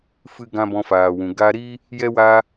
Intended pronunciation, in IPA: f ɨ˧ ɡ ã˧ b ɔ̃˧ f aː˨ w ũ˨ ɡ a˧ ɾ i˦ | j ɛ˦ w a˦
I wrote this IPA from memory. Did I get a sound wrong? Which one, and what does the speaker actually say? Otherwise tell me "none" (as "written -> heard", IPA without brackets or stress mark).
none